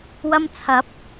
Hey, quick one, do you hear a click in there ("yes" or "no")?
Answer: no